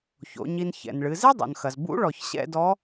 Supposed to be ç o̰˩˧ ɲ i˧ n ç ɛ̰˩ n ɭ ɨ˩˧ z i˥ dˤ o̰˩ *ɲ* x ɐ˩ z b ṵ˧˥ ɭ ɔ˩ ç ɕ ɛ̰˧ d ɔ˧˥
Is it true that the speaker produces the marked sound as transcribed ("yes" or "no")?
no